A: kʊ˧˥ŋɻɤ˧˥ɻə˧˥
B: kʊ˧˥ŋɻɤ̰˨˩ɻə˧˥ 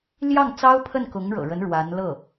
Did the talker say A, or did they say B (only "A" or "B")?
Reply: B